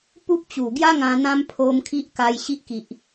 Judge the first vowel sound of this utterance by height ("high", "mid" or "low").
high